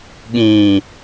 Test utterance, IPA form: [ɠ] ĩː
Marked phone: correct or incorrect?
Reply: correct